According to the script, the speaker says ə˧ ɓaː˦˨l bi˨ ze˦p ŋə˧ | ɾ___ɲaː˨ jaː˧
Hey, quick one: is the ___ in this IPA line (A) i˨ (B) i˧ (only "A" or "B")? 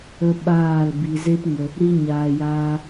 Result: B